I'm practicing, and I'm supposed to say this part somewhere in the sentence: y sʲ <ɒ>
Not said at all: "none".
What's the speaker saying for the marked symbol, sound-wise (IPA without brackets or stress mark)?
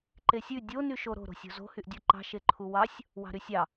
ɑ